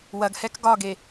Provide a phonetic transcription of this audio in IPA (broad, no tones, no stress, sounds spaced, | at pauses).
w ɐ ɡ h ɛ k ɡ ɒ ɡ e